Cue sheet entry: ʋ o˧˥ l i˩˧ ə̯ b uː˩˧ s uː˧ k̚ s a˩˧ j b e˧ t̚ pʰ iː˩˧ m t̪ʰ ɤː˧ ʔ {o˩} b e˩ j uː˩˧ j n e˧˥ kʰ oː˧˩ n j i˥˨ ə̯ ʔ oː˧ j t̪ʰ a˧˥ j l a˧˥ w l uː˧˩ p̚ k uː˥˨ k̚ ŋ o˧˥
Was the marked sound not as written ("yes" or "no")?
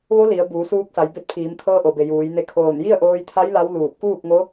no